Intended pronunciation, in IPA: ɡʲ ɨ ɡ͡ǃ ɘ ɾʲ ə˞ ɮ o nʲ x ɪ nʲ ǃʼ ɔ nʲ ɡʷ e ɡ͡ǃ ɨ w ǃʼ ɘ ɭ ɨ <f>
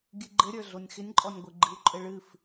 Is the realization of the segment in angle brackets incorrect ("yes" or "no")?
no